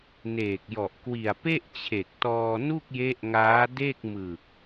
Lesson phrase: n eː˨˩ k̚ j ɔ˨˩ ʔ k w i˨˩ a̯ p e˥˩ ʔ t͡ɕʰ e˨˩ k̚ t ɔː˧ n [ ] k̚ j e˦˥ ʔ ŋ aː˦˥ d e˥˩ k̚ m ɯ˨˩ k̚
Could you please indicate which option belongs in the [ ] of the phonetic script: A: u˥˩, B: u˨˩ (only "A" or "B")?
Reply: A